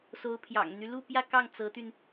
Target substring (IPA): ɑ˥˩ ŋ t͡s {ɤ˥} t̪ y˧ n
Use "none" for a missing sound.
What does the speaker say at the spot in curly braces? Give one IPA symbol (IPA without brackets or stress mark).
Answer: ɤ˧˥